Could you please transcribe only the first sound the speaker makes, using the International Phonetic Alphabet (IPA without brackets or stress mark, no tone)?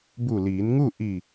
b